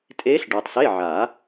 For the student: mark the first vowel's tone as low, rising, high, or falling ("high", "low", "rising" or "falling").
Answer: rising